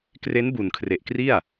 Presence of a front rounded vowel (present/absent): absent